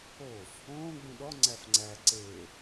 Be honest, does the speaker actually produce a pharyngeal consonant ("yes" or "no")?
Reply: no